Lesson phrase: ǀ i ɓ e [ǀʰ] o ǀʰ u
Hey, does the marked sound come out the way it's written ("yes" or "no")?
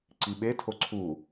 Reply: no